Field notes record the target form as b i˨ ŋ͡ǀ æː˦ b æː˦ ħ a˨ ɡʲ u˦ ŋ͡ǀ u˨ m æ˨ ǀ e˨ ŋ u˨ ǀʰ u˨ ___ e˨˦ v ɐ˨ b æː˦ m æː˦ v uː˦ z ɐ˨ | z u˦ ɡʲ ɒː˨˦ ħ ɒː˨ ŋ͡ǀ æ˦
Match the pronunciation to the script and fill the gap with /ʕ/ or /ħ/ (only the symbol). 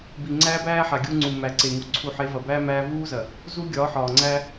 ħ